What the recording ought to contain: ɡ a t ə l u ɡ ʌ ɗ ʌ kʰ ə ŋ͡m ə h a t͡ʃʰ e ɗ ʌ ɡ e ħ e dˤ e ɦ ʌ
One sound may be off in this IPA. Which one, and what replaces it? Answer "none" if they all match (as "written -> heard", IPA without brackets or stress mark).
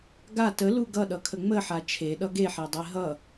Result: h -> ħ